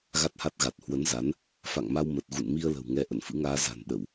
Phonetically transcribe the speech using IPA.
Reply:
ɣ a˦˥ t̚ h a˦˥ t̚ ɣ a˨˩ t̚ h w ə˨˦ n z a˨˦ n | f a̰˧˨ ŋ m a˧ w m ə˨˩ t̚ ɣ ṵ˧˨ n m i˧ ə̯ l ə̤˨˩ w ŋ ɛ˧ ʔ ə̰˧˨ n f ɨ̰˧˥ ŋ aː˧ z a̤˨˩ n ɗ ə˧˩˨ w

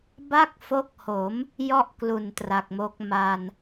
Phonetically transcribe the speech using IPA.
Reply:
b a˥˩ k̚ f o˦˥ k̚ h o˩˦ m | j ɔ˥˩ ʔ k l u˨˩ n t r a˨˩ k̚ m o˦˥ k̚ m a˧ n

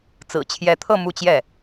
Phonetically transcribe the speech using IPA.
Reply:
t͡s ɹ̩˨˩ t͡ɕʰ j ɛ˧˥ t̪ʰ ɤ˥˧ m u˥˧ t͡ɕ j ɛ˥˩

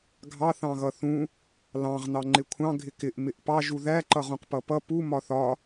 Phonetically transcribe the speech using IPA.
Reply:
ɡʱ ɑ θ ɑ̃ ɣ ʌ θ ũ | l ɑ̃ ʁ n ɑ ŋ͡ǃ ɪ kʷʰ ɑ̃ ɡʱ ɪ k ɪ ʔ m ɪ ʔ p ɑ ʒ u ð æ ǃ ʌ ʁ ũ q p ʌ p ʌ p u m ɒ θ ɒ

